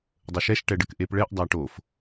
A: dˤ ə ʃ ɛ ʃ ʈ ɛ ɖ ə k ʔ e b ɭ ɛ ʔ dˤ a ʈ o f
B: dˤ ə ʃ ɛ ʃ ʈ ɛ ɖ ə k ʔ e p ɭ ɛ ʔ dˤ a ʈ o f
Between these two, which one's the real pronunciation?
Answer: B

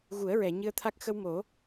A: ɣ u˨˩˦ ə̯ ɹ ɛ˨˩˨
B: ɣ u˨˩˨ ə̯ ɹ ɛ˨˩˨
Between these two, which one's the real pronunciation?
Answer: A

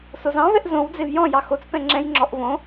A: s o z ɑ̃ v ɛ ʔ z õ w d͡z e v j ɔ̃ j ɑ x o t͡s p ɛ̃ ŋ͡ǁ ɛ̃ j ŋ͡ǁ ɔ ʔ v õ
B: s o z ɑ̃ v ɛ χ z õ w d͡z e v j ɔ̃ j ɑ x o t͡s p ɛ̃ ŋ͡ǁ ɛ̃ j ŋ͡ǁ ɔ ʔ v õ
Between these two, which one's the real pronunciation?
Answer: A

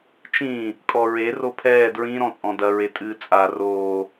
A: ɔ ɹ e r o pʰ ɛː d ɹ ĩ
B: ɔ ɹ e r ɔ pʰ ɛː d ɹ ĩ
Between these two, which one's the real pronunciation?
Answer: A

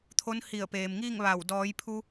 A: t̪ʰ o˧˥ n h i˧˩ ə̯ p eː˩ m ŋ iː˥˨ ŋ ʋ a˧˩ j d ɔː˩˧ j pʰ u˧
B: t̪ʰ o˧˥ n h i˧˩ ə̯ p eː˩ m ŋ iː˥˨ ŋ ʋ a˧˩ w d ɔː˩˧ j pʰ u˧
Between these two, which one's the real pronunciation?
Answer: B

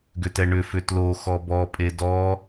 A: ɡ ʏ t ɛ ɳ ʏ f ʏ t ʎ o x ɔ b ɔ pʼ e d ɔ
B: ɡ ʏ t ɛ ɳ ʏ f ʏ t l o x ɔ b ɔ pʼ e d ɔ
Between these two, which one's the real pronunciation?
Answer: B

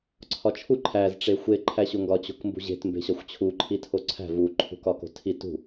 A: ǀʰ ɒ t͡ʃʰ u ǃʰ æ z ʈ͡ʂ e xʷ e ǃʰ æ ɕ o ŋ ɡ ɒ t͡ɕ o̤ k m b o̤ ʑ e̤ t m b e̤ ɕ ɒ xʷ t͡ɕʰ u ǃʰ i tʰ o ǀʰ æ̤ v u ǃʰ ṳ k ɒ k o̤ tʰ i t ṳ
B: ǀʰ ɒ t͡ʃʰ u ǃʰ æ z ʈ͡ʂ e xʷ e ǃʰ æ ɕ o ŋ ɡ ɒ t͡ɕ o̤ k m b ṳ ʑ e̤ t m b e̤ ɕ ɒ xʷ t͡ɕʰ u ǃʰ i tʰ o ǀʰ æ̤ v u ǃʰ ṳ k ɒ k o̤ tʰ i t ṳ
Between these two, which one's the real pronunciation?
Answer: B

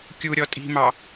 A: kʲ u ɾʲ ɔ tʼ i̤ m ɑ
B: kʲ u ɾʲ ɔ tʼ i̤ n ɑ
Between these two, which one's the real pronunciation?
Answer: A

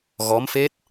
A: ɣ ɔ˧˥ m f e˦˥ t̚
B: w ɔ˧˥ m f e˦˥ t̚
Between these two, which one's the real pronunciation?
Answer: A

